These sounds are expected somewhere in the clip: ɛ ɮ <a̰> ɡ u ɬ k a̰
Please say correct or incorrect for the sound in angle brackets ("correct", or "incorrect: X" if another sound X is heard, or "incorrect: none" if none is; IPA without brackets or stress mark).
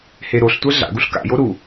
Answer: correct